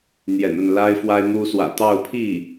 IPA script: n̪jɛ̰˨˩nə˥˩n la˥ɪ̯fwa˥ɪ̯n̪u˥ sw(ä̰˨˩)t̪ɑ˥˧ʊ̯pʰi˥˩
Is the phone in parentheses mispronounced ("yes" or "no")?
no